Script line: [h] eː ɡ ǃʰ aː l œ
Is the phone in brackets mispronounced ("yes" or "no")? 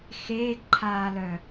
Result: yes